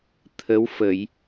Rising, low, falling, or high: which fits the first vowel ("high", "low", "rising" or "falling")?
rising